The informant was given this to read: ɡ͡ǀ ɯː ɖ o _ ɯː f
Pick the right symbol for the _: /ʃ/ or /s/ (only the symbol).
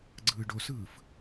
s